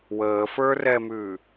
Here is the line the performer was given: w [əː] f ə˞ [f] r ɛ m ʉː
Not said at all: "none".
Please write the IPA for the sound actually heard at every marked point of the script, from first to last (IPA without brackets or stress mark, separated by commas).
əː, none